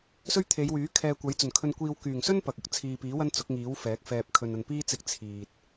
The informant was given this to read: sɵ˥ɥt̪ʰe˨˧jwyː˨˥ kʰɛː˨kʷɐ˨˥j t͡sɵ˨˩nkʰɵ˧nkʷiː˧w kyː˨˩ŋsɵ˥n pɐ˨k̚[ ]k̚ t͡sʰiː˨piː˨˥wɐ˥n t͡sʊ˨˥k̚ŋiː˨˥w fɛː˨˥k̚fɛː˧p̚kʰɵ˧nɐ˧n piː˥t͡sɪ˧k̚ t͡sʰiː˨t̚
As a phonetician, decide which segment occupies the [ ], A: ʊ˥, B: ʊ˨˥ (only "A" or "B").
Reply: B